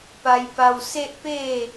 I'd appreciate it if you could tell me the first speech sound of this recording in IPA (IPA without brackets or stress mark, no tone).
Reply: p